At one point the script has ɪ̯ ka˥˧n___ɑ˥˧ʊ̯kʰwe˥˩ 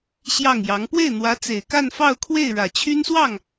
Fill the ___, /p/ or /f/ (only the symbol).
f